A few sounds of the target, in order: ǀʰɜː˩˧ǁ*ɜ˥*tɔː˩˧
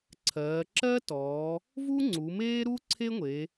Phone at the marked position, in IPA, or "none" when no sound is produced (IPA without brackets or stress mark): ɜ˥